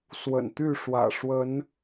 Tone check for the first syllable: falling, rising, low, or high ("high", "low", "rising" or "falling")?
low